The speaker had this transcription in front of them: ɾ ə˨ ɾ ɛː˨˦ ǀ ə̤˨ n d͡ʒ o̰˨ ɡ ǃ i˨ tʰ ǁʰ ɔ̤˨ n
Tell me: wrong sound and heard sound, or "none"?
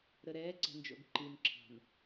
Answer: tʰ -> n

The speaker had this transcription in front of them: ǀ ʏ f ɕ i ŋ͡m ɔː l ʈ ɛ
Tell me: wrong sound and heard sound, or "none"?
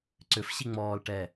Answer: none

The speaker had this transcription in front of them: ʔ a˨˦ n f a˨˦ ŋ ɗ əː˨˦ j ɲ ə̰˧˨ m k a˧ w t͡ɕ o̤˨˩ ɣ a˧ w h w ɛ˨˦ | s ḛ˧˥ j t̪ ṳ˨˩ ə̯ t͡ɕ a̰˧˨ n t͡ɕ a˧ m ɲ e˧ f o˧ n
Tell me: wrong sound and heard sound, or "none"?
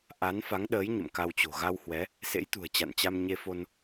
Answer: none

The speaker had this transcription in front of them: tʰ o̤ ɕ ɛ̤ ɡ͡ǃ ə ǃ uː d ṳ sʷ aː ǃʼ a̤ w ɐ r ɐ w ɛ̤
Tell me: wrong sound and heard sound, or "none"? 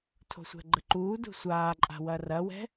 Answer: ɕ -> sʷ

